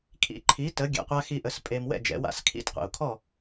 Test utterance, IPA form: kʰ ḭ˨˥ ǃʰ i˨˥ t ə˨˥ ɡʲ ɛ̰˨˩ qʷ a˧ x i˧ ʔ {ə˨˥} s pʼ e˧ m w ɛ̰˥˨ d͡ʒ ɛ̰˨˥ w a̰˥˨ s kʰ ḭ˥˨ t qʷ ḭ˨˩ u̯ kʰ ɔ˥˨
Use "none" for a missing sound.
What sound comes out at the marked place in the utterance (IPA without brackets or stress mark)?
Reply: ə˨˥